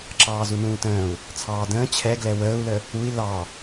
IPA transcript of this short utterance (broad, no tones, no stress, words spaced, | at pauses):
ǁɑːzunũːtə̃ːu̯ | t͡sʰɑːdə̃ː t͡ɕʰɛɡlɛ wəːu̯lə | ui̯ lɑ